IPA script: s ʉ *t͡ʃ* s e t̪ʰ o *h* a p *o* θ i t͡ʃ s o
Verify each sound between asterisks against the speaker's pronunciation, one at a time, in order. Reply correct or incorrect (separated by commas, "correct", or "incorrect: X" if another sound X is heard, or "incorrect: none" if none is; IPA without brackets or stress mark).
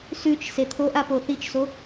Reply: correct, incorrect: ʔ, correct